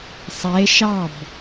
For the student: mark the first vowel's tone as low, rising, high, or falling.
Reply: rising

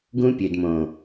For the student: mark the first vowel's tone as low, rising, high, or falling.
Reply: high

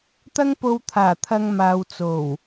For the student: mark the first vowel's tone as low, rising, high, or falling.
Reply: high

